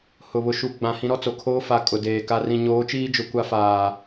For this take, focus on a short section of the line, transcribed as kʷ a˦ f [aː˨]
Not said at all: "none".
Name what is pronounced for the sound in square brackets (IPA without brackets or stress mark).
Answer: aː˨